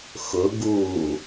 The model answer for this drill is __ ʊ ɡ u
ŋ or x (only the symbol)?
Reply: x